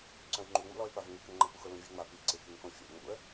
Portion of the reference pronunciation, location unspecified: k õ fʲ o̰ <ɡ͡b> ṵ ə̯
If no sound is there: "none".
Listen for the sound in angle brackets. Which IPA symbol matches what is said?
ŋ͡m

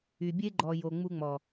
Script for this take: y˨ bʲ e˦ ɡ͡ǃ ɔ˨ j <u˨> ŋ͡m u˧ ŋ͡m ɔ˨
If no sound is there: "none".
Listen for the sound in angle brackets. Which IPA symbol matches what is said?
o˨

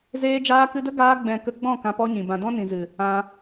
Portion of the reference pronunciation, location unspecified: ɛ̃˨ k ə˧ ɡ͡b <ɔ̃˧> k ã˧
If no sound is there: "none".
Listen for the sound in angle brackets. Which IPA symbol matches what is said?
ɔ̃˦˨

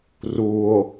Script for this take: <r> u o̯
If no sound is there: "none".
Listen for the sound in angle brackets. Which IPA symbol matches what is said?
r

